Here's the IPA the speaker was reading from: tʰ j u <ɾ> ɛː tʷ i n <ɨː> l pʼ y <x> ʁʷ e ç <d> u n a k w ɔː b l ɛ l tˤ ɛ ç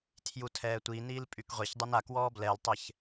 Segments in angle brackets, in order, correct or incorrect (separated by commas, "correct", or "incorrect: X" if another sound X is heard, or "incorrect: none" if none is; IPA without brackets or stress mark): incorrect: tʰ, incorrect: iː, incorrect: k, incorrect: dˤ